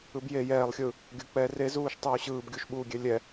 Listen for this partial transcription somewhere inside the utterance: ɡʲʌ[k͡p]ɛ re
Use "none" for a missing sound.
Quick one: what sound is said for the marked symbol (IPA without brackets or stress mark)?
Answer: k͡p